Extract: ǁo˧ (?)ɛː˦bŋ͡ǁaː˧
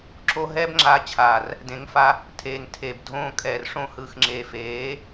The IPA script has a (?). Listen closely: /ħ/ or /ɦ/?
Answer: ɦ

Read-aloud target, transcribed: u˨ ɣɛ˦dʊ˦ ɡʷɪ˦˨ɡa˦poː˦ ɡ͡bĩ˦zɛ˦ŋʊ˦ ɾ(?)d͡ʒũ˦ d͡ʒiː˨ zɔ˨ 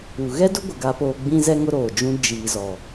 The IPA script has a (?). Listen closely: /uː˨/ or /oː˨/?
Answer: oː˨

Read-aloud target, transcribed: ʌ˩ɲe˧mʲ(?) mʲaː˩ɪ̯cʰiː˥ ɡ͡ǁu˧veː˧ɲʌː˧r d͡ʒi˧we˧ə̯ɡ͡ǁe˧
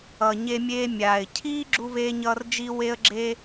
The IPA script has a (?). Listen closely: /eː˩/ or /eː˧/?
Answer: eː˧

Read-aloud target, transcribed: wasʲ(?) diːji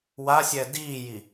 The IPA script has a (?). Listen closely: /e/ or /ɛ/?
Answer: ɛ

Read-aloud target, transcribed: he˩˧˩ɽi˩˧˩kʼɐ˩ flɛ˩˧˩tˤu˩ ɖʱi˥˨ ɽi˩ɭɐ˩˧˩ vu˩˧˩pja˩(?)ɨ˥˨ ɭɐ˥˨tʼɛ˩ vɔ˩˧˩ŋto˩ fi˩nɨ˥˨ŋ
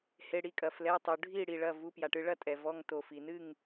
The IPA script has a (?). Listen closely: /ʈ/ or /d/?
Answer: ʈ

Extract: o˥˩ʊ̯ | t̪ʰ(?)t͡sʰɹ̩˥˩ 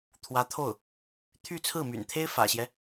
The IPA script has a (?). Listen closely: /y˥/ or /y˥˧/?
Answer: y˥˧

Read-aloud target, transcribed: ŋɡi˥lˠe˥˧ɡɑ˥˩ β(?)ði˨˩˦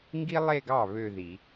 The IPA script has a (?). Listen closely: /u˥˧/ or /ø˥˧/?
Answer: ø˥˧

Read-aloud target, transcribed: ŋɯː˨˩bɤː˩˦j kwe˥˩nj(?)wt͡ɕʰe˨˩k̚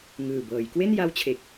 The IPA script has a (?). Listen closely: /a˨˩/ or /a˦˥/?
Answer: a˦˥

